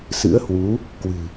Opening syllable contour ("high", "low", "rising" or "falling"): rising